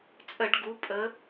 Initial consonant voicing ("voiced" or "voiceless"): voiceless